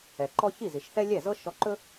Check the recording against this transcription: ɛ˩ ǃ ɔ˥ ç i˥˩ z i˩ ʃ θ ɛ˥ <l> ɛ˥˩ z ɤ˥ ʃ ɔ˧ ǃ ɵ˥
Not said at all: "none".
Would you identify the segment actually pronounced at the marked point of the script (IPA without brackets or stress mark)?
lʲ